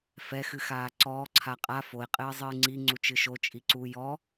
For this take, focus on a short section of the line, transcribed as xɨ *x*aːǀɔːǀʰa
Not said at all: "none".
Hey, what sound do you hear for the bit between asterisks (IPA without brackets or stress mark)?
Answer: x